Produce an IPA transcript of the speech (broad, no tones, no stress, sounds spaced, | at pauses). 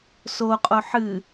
s o qʼ o ħ ɨ